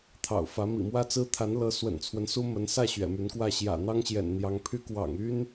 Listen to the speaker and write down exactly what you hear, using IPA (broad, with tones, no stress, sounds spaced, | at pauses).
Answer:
t̪ʰ ɑ̰˨˩ ʊ̯ f ä˧˥ m ḭ˨˩ m w ä˥ t͡s ɹ̩˥ t̪ʰ a˧˥ n l ɤ˧˥ s w ə̰˨˩ n t͡sʰ w ə˦ n s u˥ m ə˧˥ n s ä˥˩ ɕ ɥ ɛ̰˨˩ m y˧˥ n k w ä˥˩ ɕ j ä̰˨˩ n̪ ɑ˥ ŋ ɕ j ɛ̰˨˩ n n̪ j ɑ˧˥ ŋ pʰ y˥ k w ɑ̰˨˩ ŋ y˥ n